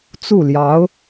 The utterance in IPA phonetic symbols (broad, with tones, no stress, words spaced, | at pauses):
t͡su˥˩ljɑ˧˥ʊ̯